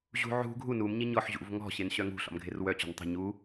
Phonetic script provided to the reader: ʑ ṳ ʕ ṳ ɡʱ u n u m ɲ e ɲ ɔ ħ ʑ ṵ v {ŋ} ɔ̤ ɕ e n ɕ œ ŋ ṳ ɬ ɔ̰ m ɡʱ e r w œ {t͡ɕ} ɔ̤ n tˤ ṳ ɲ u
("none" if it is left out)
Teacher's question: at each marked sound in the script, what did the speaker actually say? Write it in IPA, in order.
ŋ, t͡ɕ

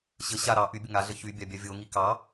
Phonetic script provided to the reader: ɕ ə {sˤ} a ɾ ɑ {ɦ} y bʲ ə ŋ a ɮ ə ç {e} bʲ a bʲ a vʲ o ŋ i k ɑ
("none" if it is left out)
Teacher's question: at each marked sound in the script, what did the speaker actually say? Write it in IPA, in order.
ɕ, ʔ, y

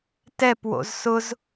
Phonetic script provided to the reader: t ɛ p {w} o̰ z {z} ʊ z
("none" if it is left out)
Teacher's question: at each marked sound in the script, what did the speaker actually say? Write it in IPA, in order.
w, s

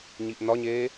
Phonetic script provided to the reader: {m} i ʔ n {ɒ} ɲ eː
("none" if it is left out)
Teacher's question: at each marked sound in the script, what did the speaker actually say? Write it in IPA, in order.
ɲ, ɒ

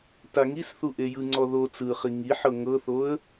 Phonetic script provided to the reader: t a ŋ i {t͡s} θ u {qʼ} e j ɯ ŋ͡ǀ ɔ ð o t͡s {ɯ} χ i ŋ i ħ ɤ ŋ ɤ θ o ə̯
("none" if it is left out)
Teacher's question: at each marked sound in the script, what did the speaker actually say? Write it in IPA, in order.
s, ʔ, ɯ

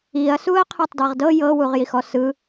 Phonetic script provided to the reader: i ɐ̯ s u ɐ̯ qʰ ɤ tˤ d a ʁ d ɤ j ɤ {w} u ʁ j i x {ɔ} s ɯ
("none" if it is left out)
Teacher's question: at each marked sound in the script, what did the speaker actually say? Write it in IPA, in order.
w, ɔ

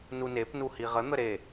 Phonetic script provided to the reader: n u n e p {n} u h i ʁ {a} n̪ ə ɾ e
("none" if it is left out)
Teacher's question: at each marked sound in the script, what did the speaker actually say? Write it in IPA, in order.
n, ə

